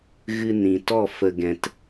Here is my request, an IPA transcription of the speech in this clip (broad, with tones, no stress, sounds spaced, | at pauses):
ɣ ɨ˧ n ĩ˨ t ɔ˦˨ f ə˧ ɡ ɛ̃˧ t